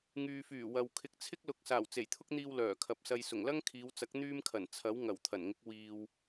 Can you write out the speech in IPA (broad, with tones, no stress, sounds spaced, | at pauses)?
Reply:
ŋ yː˨ f yː˨˩ w ɐ˨ w kʰ ɪ˧ k̚ t͡sʰ ɪ˥ k̚ l ʊ˨˥ k̚ s aː˨˩ w t͡s e˨˩ j t̪ʰ ʊ˥ k̚ n̪ iː˧ w l œː˨˩ kʰ ɐ˨ p̚ s ɐ˧ j s ʊ˨˩ ŋ l ɐ˥ ŋ kʰ iː˨˧ w t͡s ɐ˨˥ k̚ n̪ yː˥ m kʰ ɐ˨˩ n t͡sʰ ɐ˨˥ w ŋ ɐ˨˩ w t̪ʰ ɐ˨˩ n ŋ ɪ˨˥ k̚ w iː˨ w